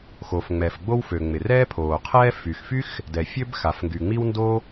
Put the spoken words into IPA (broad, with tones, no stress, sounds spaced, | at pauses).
x o˩ f ŋ͡m ɛ˩ f ɡ͡b o˥ w f ø˩ ŋ͡m ɪ˩ r ɛː˥ pʰ oː˩ qʰ ɛː˥ f y˩ x f y˥ x | d ɛ˩ fʲ ø˥ b x a˩ f ŋ ɡ y˩ ŋ͡m i˥ w n d o˥